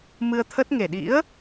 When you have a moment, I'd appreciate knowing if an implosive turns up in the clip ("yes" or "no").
yes